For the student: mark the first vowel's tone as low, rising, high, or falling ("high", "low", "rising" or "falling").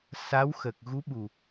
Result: rising